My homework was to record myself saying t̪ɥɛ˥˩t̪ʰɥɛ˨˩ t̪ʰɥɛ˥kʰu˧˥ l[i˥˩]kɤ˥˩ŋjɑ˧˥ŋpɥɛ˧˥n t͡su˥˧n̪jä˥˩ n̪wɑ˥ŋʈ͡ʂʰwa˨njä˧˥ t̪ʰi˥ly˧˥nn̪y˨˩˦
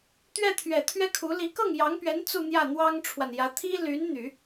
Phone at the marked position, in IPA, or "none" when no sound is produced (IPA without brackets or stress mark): i˧˥